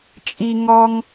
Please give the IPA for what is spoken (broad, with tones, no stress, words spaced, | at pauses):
t͡ʃʼi˥ŋɔ˥ŋ